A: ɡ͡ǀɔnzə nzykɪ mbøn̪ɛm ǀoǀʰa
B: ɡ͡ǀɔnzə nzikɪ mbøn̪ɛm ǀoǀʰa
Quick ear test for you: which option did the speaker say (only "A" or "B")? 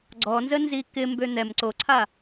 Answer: B